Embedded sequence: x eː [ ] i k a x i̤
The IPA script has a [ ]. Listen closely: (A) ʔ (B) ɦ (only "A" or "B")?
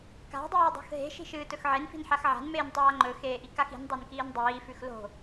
A